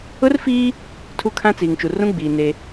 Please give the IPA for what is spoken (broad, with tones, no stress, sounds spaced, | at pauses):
ʊ˦ r f iː˦ | tʰ u˦ kʰ ã˦ t͡s iː˨ ŋ t͡ʃ u˨ r ũ˦ ɡ͡b iː˨ n e˦